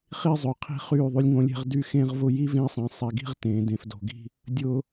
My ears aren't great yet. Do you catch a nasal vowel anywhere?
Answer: yes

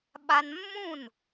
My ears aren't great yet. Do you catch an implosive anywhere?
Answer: yes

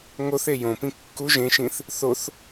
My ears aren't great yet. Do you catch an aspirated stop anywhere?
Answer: no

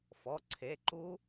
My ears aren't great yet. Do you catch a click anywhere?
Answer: yes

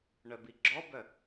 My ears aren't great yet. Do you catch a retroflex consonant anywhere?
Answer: yes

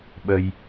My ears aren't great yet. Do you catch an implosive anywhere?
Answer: yes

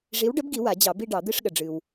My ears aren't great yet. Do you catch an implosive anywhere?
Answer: yes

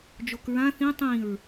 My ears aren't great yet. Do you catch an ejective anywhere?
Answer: no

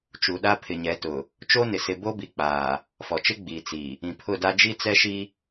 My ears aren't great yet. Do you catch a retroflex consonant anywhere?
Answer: no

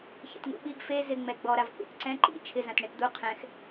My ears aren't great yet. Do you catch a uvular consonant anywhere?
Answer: yes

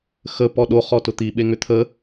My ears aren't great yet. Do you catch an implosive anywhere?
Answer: yes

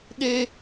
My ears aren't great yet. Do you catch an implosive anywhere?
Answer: yes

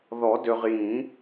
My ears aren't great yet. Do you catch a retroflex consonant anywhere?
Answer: no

